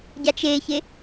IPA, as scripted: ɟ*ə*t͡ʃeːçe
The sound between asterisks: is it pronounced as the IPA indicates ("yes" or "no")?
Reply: no